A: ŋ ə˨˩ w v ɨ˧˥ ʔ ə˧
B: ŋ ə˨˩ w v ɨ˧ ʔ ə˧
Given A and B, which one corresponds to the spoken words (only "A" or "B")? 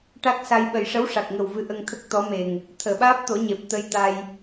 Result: A